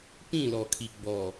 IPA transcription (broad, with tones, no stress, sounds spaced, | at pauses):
p ĩ˦˨ l ɔ˨ kʰ i˨ ɡ͡b ɔ˨